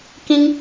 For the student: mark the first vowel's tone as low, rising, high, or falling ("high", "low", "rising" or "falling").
high